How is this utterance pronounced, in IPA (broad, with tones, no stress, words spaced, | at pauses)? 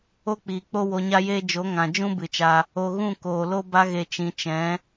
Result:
o˦k͡piː˨k͡po˦ wo˧ɲa˦jeː˦ d͡ʒo˨˦ŋã˨d͡ʒũ˦ bɨ˨t͡ʃa˧ | o˨ ɣũ˦˨ koː˨lo˧ ba˧ɣe˨ t͡ʃĩ˨ t͡ʃɛ̃˨˦